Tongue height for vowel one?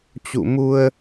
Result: high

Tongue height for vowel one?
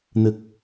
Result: high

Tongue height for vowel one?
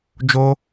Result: mid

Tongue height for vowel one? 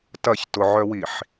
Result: low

